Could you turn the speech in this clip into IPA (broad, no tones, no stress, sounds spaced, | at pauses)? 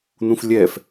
n ũ f lʲ ɛ f